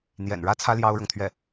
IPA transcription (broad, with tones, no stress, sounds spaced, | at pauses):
n̪ j ɛ̰˨˩ n ɻ ä˥ t͡sʰ ä˥ l j ɑ˥ ʊ̯ ɻ ɤ˨ ŋ t̪ʰ ɥ ɛ˥˩